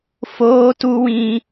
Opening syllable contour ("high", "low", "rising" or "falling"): high